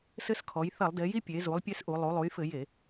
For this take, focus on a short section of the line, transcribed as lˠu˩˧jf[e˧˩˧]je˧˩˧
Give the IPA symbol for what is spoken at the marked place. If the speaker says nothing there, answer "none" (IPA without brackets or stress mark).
ɘ˧˩˧